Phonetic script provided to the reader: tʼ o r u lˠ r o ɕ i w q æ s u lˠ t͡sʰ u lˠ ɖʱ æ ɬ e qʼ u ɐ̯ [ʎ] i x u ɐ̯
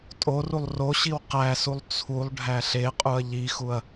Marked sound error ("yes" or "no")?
no